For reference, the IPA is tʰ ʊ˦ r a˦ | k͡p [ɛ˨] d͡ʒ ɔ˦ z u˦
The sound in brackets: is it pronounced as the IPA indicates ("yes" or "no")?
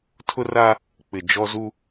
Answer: no